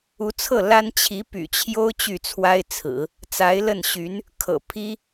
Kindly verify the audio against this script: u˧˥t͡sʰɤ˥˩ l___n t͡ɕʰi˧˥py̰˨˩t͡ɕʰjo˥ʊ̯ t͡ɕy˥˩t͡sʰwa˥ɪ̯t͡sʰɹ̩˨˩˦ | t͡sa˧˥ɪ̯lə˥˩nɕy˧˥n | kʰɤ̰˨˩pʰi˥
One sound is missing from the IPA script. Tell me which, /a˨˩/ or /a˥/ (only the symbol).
a˥